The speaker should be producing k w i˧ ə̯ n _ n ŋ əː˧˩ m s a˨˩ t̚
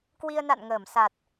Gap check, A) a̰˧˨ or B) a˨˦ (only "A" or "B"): A